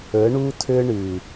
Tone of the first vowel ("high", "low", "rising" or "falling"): rising